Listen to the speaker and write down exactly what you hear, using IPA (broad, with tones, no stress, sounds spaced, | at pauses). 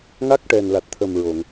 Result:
ŋ a˦˥ k̚ ʈ ɛ˨˩ n l a˨˩ t̚ t̪ʰ ə˨˩ m ɹ o˨˩˨ ŋ